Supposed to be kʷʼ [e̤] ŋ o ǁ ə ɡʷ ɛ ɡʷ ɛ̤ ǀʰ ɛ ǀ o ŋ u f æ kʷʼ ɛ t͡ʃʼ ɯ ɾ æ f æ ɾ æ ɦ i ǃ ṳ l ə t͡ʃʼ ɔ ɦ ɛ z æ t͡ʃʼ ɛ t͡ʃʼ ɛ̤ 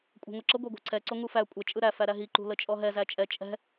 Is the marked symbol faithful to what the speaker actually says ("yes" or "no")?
no